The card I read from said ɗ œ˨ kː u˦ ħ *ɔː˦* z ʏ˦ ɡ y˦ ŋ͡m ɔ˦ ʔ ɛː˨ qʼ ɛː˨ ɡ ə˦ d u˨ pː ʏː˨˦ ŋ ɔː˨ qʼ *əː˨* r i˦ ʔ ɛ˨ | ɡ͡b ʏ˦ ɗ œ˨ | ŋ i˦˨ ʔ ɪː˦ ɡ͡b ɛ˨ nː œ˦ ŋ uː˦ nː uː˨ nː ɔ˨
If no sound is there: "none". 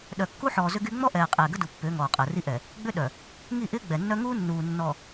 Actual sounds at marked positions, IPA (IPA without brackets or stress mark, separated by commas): ɔː˨, əː˨